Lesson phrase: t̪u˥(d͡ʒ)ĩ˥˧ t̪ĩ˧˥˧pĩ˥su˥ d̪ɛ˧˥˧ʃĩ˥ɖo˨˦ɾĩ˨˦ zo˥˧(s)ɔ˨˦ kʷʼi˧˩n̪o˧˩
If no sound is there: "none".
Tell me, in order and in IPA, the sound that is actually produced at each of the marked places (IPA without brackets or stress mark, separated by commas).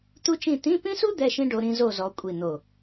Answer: t͡ʃ, z